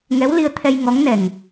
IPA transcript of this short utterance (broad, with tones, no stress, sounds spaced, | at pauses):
ŋ ɛ˧˥ w l i˧ ə̯ t̪ʰ ɛ˧ j ŋ ɔ˧˥ ŋ n ɛ˨˩ ŋ